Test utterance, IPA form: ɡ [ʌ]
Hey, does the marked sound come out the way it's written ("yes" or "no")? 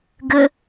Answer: no